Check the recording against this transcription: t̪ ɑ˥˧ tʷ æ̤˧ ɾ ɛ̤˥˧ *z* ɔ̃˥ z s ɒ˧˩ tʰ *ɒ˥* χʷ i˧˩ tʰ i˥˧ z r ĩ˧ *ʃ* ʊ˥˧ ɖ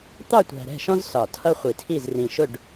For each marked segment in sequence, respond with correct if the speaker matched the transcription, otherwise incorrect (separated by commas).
incorrect, incorrect, correct